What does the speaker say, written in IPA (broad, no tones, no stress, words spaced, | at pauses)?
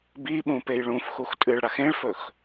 biɓũpej ɭũfxux tʼɨɭɽax ẽɭfɵx